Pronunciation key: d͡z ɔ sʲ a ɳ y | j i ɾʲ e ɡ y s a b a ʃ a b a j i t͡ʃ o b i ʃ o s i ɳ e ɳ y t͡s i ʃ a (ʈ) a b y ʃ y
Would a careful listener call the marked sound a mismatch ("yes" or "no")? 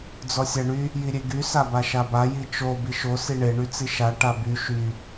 no